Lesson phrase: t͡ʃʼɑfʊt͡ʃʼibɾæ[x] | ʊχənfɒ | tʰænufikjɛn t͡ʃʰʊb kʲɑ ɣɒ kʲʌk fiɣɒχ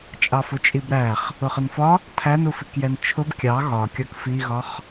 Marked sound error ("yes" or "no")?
yes